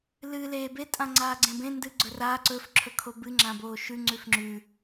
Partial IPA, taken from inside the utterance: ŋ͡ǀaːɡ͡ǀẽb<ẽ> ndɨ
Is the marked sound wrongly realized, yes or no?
no